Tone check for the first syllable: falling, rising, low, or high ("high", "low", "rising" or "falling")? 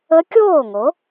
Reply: rising